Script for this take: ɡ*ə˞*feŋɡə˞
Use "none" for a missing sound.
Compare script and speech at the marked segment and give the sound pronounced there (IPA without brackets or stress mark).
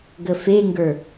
ə